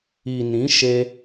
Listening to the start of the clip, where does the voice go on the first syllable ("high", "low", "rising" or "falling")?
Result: low